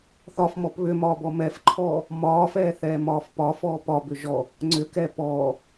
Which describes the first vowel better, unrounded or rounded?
rounded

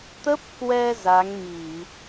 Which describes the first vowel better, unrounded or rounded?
unrounded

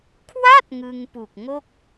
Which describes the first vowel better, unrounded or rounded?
unrounded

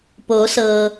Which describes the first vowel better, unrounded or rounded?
rounded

